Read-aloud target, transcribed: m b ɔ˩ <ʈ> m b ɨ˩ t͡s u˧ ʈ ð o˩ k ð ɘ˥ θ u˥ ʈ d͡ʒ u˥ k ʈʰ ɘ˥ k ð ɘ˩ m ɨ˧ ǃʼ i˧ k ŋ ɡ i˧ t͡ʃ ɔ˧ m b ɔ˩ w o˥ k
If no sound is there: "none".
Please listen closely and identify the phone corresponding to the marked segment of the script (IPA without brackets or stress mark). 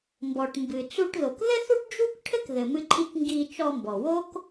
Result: ʈ